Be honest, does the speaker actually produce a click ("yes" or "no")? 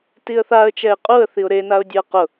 no